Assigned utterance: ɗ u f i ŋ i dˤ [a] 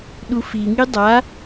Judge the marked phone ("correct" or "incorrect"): correct